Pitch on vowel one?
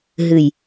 low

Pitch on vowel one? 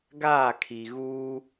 falling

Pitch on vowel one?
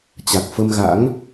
low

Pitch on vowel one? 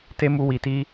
high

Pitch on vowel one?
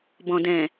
low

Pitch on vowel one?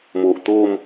low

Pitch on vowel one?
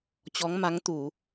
rising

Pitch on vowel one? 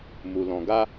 low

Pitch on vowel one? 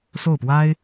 falling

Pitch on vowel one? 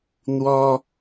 high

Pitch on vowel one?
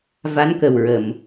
rising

